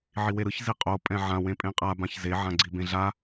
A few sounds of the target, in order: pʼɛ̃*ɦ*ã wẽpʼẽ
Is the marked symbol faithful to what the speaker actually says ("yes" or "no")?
no